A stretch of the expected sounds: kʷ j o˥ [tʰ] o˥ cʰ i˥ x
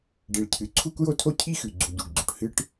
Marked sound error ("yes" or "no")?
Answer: no